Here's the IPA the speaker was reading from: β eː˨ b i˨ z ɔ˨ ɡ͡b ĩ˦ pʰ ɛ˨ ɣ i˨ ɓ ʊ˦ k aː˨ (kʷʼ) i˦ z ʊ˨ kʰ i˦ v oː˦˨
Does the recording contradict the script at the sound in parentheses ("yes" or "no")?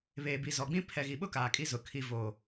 yes